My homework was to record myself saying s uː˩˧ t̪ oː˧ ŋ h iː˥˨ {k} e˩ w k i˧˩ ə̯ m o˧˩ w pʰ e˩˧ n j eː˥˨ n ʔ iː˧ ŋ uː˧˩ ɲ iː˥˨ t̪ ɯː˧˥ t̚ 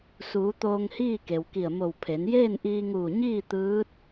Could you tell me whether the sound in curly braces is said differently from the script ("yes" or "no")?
no